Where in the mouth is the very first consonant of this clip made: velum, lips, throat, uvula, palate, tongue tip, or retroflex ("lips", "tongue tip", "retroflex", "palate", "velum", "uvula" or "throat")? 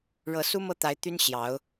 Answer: retroflex